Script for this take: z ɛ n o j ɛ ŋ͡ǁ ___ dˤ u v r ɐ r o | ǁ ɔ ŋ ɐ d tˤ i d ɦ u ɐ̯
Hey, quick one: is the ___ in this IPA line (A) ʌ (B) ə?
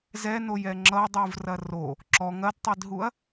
A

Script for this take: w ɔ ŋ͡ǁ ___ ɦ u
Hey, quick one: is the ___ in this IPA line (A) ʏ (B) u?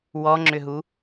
A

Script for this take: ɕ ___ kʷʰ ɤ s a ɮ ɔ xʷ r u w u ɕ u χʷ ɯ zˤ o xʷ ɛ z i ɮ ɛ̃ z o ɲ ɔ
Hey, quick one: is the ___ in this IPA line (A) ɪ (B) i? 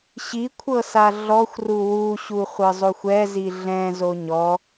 B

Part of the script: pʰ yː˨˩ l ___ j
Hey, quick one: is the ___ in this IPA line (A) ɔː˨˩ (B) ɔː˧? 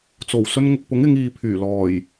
A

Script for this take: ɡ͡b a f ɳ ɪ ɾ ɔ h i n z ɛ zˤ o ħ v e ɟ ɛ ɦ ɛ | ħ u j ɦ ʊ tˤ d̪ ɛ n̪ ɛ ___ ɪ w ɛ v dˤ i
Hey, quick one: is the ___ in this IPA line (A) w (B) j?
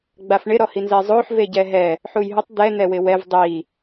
A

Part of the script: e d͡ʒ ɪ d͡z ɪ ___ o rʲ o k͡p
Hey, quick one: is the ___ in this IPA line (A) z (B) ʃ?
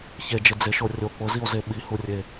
B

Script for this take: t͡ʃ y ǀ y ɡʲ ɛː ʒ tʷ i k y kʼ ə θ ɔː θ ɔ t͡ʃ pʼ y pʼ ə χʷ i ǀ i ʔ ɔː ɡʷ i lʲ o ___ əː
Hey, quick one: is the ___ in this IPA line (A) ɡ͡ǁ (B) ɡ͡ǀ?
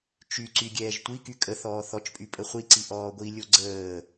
B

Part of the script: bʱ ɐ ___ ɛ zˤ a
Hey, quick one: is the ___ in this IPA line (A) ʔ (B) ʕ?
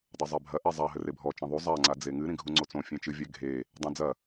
A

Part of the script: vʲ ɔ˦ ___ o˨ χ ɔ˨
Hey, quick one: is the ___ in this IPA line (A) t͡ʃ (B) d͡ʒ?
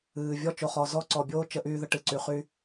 A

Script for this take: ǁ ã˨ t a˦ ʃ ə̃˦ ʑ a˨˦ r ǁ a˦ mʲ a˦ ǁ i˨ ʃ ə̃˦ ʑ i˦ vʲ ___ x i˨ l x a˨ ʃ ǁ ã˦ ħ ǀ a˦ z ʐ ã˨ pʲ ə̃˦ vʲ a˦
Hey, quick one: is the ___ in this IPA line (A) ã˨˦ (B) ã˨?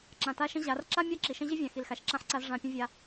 B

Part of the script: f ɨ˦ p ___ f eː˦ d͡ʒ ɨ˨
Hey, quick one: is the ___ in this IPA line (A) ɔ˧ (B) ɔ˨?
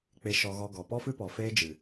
B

